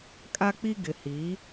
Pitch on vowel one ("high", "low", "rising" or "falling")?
high